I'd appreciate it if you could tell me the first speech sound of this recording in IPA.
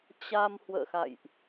t͡ɕ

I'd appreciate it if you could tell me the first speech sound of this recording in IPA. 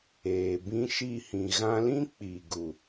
eː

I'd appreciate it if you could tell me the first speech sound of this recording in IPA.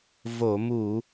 v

